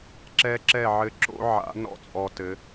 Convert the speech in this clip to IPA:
ǁɛ˦ǁɛ˦˨ʕɘ˦ǁo̰˦ ʕa̰˨˦ nɔ̰˦t͡sʼɔ˨ tɘ˨˦

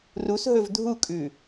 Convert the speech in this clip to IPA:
rusɦɵv dʱukʼʉ

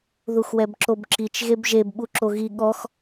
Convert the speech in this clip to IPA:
ðuxwɛbǁobǁit͡ʃ ɣebʒeb ɓuǁoɣi ɠɔx

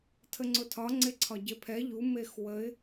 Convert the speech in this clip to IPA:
tʰəŋ͡ǀʊtʰɒ ŋ͡ǀeǀʰɒɟepʰɛ ʎu mexwəɪ̯

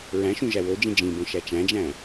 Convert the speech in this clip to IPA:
ɹæ̃ʃũ ʒæwod͡ʒĩ d͡ʒĩbõ ʃæt͡ʃæ̃d͡ʒæ̃

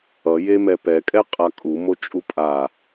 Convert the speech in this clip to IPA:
ʌjemɛ pɛkʼɛqʼa kʼumot͡ʃʼu pʼa

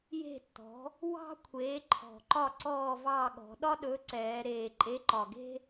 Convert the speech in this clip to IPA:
je̤˥˨tːɔ̤˨˥ | wɑ̤˥kʷʰeː˨˥ǃʰɔ̤˨˩ǃɒ˥˨ ǀɔː˥˨vɑː˥˨ ɠɔ̤˩˧ɗɒ˥ɗɵ˨˥ ǀɛː˩˧ɾeː˨˩ ǃʼe˨˥ǃɒ˨˩ɡe̤˥

